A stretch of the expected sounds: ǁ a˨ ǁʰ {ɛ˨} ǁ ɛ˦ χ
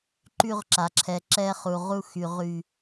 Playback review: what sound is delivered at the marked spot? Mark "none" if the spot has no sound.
ɛ˨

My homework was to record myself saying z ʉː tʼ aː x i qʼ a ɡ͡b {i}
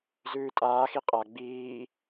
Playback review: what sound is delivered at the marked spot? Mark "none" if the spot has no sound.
iː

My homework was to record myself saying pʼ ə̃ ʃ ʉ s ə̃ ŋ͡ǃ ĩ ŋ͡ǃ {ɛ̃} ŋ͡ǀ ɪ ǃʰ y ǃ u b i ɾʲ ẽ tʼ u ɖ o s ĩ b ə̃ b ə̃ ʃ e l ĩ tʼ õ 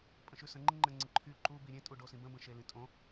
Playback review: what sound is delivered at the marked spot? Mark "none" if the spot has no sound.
ɛ̃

